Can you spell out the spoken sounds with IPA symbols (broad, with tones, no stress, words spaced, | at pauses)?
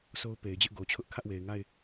so˦ʊ̯pe˨ɪ̯d͡ʑɪ˦ʔ ɡo˨t͡ɕʰʊ˦ʔ kʰä˦ʔwe˨ɪ̯ŋa˦˨ɪ̯